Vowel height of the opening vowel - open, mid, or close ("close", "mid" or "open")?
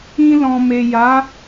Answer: close